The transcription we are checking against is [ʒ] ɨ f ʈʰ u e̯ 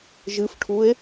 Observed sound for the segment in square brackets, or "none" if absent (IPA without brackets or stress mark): ʒ